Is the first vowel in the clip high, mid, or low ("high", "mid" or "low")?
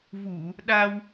high